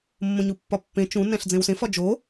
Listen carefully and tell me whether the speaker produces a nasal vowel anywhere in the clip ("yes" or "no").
yes